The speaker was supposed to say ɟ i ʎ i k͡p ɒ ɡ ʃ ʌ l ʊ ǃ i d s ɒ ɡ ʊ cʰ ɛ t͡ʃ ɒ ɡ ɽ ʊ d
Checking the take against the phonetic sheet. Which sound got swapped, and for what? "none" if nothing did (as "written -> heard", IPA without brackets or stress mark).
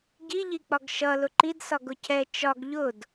ɽ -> ʎ